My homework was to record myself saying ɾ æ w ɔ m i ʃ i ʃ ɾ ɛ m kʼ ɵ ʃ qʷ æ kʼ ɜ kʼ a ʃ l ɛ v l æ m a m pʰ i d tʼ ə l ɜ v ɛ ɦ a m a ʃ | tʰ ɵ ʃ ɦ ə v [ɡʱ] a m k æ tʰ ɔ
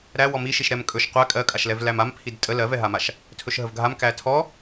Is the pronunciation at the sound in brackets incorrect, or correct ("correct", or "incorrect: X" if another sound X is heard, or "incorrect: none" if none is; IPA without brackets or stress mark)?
correct